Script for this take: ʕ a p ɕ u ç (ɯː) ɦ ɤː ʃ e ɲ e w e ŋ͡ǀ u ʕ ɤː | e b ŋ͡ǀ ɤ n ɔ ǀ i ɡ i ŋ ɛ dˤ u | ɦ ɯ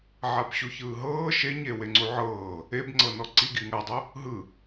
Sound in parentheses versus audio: correct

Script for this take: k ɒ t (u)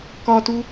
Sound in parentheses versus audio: correct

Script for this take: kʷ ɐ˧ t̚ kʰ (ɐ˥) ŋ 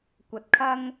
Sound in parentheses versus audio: correct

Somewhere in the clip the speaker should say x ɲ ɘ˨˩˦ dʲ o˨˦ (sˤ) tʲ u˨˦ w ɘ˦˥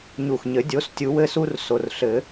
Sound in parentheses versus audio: incorrect: s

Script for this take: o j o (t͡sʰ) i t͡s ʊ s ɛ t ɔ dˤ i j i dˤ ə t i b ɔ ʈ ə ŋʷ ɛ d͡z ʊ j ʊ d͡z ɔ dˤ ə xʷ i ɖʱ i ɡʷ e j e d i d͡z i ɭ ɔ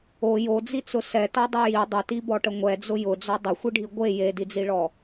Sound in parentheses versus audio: incorrect: d͡z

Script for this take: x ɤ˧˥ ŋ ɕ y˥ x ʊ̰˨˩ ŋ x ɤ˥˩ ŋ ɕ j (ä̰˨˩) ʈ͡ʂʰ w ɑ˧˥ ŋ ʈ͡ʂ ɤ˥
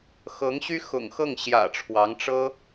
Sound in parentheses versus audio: correct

